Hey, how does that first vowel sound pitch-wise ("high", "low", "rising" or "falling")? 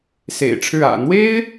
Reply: low